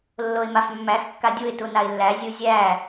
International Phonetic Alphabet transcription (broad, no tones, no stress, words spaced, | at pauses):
lːoɪ̯mafmːæx kːadʲuɪ̯ tunaɪ̯lːæ zʲuzʲæ